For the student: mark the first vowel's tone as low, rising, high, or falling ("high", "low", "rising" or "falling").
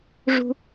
low